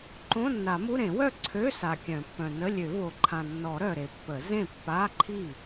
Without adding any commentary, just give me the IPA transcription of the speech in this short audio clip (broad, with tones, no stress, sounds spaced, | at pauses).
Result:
ǃ õ˧˥˧ nː a˨˩˦ m u˧˥˧ ɾ ẽ˨˩˦ w œ˥˩ ǀʰ ø˧˥˧ s a˨ kʲ œ̃˨˩˦ pː œ̃˨ n ə˧˥˧ lʲ ø˨˩˦ v o˨ ǃʰ ã˨ nː ɔ˨˩˦ ɾ œ˨ ɾ e˨ pː ə˨˩˦ z ẽ˥˩ pː a˧˥˧ ǃʰ i˥˩